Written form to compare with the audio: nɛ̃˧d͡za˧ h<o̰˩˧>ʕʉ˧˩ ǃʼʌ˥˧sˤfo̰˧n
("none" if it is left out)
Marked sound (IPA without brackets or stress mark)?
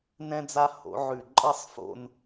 o̰˩˧